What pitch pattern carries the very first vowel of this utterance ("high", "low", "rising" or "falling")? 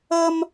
high